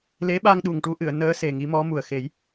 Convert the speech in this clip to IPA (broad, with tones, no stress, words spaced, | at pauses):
le˧˥ɓa˧ŋɗu˨˩ŋ ʈu˧˥ʔɨ˨˩˨ə̯ nəː˧˥ se˨˩ŋi˧˥mɔ˧˥ mu˨˩ə̯xe˨˩˦j